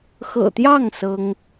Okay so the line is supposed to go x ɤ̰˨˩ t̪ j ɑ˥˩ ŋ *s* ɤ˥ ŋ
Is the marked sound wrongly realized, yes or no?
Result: no